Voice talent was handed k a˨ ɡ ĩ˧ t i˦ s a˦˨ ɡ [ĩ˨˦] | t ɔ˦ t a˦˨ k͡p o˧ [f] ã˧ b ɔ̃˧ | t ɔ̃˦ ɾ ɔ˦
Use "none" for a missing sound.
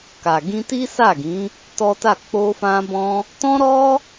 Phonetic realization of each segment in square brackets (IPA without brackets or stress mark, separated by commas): ĩ˨˦, f